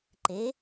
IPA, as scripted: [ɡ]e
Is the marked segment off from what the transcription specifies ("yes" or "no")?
yes